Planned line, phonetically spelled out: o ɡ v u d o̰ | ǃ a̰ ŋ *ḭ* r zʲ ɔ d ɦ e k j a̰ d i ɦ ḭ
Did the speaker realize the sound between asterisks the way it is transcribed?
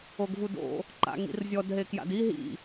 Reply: yes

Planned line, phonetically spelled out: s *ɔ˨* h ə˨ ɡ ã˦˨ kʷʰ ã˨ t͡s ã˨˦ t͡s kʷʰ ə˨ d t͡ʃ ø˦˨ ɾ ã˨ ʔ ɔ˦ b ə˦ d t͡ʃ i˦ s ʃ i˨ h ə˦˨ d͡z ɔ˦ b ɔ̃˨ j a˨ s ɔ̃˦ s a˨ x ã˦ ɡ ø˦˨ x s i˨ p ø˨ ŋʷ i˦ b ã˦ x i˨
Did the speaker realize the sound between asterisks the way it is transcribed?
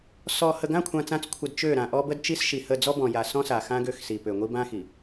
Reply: yes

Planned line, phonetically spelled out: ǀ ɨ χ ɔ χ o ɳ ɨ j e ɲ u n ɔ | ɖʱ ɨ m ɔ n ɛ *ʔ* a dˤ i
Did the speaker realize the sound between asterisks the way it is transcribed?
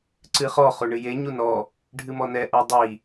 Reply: yes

